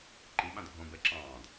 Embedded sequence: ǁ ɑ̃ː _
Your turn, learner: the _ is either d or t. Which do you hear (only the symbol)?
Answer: d